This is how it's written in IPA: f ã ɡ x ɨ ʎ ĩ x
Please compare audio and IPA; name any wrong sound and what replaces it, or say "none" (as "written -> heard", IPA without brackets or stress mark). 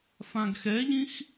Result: ɨ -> ɛ